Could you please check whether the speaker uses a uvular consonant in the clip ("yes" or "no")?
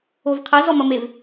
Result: yes